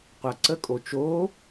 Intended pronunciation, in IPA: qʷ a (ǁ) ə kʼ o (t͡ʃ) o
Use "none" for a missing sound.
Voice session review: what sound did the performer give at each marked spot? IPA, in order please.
ǀ, t͡ʃ

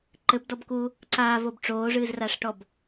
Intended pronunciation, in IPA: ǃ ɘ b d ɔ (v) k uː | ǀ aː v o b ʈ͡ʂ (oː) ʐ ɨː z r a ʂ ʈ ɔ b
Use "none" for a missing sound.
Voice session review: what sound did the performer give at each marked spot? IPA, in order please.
b, oː

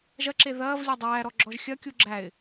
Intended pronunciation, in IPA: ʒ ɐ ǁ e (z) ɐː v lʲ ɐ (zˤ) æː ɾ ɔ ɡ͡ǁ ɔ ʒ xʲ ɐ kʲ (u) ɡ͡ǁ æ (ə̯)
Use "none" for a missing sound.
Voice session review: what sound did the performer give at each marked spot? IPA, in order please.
ð, dˤ, u, ɪ̯

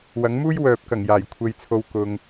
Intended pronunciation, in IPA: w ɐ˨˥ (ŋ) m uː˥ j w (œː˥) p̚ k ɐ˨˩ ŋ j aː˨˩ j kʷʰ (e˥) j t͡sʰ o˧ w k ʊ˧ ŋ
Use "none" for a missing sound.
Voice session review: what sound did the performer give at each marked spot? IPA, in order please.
ŋ, œː˨, e˧

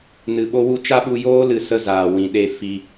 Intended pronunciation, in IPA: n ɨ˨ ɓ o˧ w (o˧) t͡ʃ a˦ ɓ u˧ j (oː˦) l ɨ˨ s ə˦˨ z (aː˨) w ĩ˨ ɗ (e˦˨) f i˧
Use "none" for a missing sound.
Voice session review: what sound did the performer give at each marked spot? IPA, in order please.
u˧, oː˦, aː˨, e˦˨

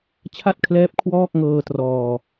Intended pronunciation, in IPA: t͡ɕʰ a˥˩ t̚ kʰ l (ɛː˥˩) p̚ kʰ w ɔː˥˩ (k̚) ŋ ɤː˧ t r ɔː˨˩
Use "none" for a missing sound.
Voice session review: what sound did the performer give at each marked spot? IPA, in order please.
ɛː˦˥, k̚

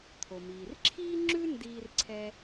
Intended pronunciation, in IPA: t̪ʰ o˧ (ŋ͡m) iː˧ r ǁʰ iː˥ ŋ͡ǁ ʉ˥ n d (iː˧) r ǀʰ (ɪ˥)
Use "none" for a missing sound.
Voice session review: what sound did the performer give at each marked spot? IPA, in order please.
m, iː˥, ɛ˥

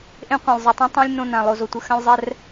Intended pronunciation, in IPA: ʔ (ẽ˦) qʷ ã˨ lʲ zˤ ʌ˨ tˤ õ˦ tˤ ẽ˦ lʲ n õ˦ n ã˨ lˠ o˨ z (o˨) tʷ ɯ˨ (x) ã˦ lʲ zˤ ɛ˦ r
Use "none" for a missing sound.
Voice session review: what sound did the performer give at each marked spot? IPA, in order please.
ẽ˦, o˨, x

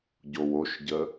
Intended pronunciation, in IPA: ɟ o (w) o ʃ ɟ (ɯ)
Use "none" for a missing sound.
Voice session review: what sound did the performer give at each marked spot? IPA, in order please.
w, ə

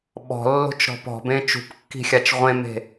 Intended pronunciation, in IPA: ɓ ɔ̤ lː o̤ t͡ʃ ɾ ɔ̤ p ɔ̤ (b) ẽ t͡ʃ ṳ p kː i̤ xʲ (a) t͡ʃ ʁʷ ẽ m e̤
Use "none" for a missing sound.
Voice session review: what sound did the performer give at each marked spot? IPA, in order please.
b, a

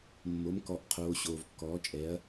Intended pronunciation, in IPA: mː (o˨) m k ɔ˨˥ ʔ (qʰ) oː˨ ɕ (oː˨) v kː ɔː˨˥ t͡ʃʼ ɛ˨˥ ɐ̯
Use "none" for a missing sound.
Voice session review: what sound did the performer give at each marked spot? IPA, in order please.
o˨˥, qʰ, oː˨

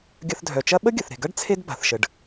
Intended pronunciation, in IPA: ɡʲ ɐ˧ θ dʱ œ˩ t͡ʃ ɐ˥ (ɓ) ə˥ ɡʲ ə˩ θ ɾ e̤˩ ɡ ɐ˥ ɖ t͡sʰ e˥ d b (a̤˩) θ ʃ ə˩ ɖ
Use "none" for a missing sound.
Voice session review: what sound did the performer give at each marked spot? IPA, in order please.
ɓ, a̤˩

